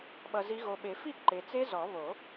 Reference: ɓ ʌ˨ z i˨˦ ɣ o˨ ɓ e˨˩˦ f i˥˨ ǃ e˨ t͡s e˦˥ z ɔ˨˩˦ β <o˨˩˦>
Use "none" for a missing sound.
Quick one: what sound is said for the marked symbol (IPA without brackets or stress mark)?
o˨˩˦